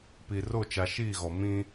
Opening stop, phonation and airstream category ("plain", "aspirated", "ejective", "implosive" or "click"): plain